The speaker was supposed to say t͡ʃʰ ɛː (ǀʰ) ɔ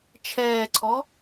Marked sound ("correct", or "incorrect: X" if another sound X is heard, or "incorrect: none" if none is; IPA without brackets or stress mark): correct